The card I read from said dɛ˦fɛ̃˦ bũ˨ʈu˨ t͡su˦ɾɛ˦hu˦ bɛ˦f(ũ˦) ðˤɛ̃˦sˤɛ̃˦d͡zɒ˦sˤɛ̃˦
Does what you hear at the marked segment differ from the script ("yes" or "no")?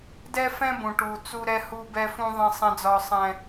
no